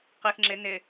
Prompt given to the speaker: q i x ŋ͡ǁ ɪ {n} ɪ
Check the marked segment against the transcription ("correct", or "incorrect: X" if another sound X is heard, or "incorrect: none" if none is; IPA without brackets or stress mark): correct